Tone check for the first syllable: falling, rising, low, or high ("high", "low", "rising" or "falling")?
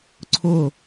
falling